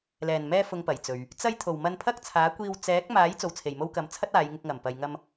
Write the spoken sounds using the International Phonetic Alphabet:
l ɛː˨˩ n m ɛː˧ f ʊ˨ ŋ p ɐ˨˩ j t͡s ɵ˨ ɥ | t͡s ɐ˧ j t̪ʰ o˨˩ w m ɐ˧ n pʰ ɐ˥ k̚ t͡sʰ aː˨˥ kʷ iː˧ w t͡s ɛː˨˥ k̚ m aː˨˥ j t͡s o˨ w t͡sʰ e˨˩ j m o˧ w k ɐ˨ m t͡sʰ ɐ˥ t̚ aː˨˧ j ŋ ɪ˧ k̚ ŋ ɐ˨˩ m p ɐ˨ j ŋ ɐ˧ m

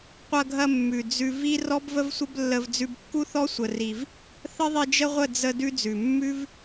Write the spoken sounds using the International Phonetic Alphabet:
qʷ ɐ˧ ɡʱ ɐ˧ mː ʉ˨ d͡z ʉ˦ v i˦ r ɔ˦ b v ə˦ v sʷ ə˦ b lː ə˧ v d͡z ʉ˧ b kː u˦ θ ɔ˦ sʷ ə˧ r i˧ v | θ ə˦ ðˤ i˧ d͡ʒ ə˦ ʁʷ ə˦˨ d͡z ə˧ d ʉ˦ d͡z ʉ˨ mː ʉ˦ v

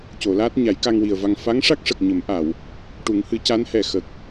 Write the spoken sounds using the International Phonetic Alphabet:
c o˨˩˨ l aː˦˥ t̚ ɲ a˨˩˦ j k a˧ ŋ w i˨˩ ə̯ v a˧ ŋ f a˧˥ ŋ ʂ a˦˥ k̚ ʂ ə˨˩ k̚ ɲ ə˨˩˦ m ʔ a˨˩˨ w | ʈ u˨˩˦ ŋ h ɨ˨˩˦ c a˧˥ n h ɛ˨˩ x ə˨˩ k̚

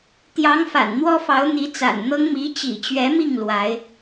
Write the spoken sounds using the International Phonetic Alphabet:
t̪ j ɑ˧˥ ŋ f a̰˨˩ n n̪ w ɔ˥ f ɑ˧˥ ʊ̯ n̪ i˧˥ t͡s a̰˨˩ n n̪ ɤ˥ ŋ m i˧˥ t͡ɕ ḭ˨˩ t͡ɕ ɥ ɛ˧˥ m i˥˩ ŋ l w a˧˥ ɪ̯

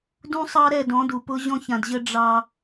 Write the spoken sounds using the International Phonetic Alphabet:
d ũ˦ sˤ ɑ˦ ɾ ɛ˦˨ d ɔ̃˨˦ d u˨ p ʊ˦ ʑ ɔ̃˦ ç ã˨ d ʑ ə˦ ɖ͡ʐ ɑ˦

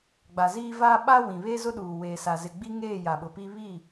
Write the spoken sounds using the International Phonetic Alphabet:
ɡ͡b a˨ z iː˦ v aː˦ ɓ a˦ w ĩ˨ β e˦ z ʊ˦ ɗ uː˨ w eː˨ s a˨ z ɪ˨ ɡ͡b i˦ ŋ eː˦˨ j a˨ ɓ ʊ˨ p i˦ β i˦˨

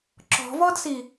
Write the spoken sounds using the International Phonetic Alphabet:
ǁ ɔ̤ v ɔ d s i

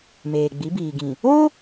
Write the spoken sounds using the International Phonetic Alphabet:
m eː˨ ɡ͡b i˨˦ b iː˨ ɡ ĩ˨ | o˦

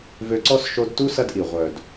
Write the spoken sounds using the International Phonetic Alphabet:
v ø˧ ǀ ɔ˦ s ʃ o˧ d t u˦ s ɐ˦ d ʔ i˨ ʁʷ œ˨ d

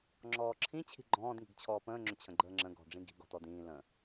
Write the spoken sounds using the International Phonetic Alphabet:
ŋ͡ǁ ɔː ǁʰ ĩ t͡ɕʰ i̤ ɡ͡ǃ ɔ̃ː d ŋ i̤ ɡ t͡ɕʰ ɔː p ə̃ː ŋ͡ǁ ʏ t͡ɕʰ ə̃ ɡ͡ǃ əː ŋ͡ǁ ə̃ ɡ ɔ̤ ɖ͡ʐ ĩ ɡ i̤ ɡ ɔ̤ t ɔ d ĩː l ə̃

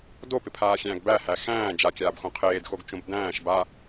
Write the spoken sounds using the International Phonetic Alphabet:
d o p ɪ pʰ aː xʲ æ̃ː ɡ b æ h æ x æ̃ː d͡ʒ a kʲ aː b x õ qʰ eː d x o ɡ t͡ʃ õ b d æ̃ː ʃ b a

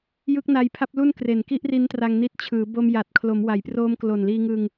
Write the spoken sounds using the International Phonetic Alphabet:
j ɯ˦˥ k̚ n a˧ j pʰ a˥˩ p̚ l u˥˩ n k r e˨˩ n k i˥˩ ʔ r i˦˥ n t r a˧ ŋ n i˦˥ t̚ t͡ɕʰ ɯː˩˦ b o˧ m j a˨˩ t̚ kʰ l o˩˦ m w a˩˦ j p r oː˦˥ m k l o˨˩ n l iː˧ ŋ ɯ˧ ŋ

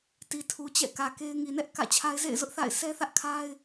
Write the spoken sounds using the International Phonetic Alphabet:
t i˨ tʰ u˨ t͡ɕ ɛ̰˦˨ k ä˨ k e˦ ɪ̯ ŋ i˨ n ɛ˦ ʔ k ä̰˦˨ t͡ɕʰ a˦ ɪ̯ z ḛ˦˨ ɪ̯ z ʊ˦ ʔ θ a̰˦˨ ɪ̯ sʰ ɛ˦ θ ä˦ ʔ kʰ a˦ ɪ̯

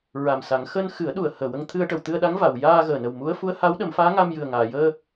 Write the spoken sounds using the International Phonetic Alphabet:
ɹ a˨˩ m s a˨˩˦ ŋ x əː˧ n x ɨ˨˩˦ ə̯ ɗ u˨˩ ə̯ h əː˨˩ w ə˧ ŋ t̪ʰ ɨ˧ ə̯ ʈ ə˨˩˨ w t̪ ɨ˧ ə̯ ɗ a˧˥ ŋ v a˨˩˨ w j aː˧ ɣ əː˨˩ n ə˨˩ w m u˧˥ ə̯ f u˧˥ ə̯ h a˧˥ w ɗ ə˨˩˦ m f aː˧˥ ŋ a˧ m j ɨ˨˩ ə̯ ŋ aː˨˩˨ j əː˧

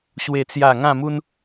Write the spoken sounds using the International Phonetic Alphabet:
ɕ w e˥˧ t͡s j a˥˧ ŋ ã˥˧ m u˦ n

